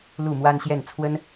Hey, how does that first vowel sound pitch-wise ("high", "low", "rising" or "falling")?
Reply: falling